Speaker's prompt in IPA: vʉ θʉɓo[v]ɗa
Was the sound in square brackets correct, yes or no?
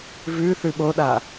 no